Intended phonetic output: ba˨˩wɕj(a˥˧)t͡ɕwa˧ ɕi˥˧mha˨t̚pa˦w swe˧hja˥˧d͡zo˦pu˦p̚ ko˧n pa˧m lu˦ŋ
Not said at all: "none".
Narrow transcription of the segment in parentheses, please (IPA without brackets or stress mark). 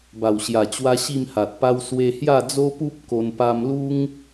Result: a˨˩